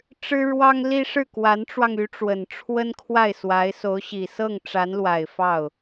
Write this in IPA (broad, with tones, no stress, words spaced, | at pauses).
ʈ͡ʂɻ̩˥ɻwɑ˥ŋli˥ ʂɻ̩˥˩kwa˧˥nʈ͡ʂwɑ˧ŋy˧˥ ʈ͡ʂwə˨˩nʈ͡ʂʰwə˥nkʰwa˥˩ɪ̯ swa˧˥ɪ̯so˧˥ʊ̯ɕi˨˩ sɤ˥˩ŋʈ͡ʂa˧˥nlwa˨˩ɪ̯ fɑ˥˩ʊ̯